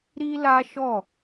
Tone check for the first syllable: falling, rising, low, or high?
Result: high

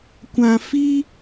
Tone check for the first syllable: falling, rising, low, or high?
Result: low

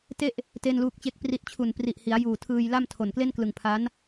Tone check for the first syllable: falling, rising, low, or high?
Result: falling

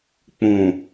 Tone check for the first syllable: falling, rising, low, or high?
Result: low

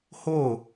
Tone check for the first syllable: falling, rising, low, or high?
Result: falling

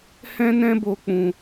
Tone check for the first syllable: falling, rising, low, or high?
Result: high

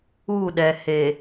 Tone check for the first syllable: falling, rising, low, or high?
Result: falling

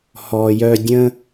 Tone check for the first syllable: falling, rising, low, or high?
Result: low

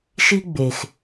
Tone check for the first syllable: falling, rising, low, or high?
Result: high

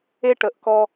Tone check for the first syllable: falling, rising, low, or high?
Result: high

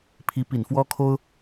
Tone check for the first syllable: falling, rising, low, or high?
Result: rising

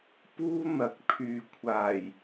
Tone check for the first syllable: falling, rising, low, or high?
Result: high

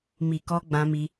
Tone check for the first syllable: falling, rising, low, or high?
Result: low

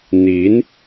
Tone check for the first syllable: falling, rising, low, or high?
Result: rising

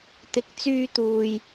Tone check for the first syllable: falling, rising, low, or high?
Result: rising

